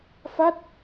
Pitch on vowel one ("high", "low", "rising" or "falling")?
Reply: falling